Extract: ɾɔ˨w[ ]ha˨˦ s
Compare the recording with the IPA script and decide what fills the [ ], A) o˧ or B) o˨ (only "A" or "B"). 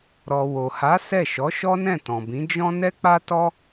B